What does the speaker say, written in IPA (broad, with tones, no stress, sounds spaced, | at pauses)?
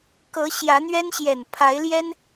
k ɤ˨˦ ɕ j ä˨˦ n̪ ɥ ɛ˦ n ɕ j ɛ˨˩ n pʰ a˨˦ ɪ̯ l j ɛ˦ n